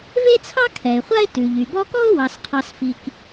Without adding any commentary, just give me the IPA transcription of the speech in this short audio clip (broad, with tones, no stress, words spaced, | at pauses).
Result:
ve˥t͡sʰɑ˥ kʰɛ˩ɪ̯χʷa˥ɪ̯ tʉ˩ʎy˩bɔ˦ kɔ˥ʊ̯wɑ˨sqʰɑ˨s fi˨k